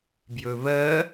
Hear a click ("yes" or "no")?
no